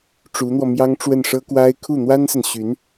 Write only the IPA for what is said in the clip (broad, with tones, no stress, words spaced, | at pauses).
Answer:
ʈ͡ʂu˧˥n̪wɔ˧mjɑ˥ŋ ʈ͡ʂwə˥˩nʂɤ˥kwa˥ɪ̯ kʰu˥˩n̪wa˥nsə˨nɕy˧˥n